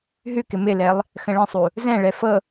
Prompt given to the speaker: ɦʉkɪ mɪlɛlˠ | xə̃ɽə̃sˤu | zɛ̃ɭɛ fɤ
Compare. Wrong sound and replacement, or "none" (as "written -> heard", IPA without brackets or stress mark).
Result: ɽ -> ɭ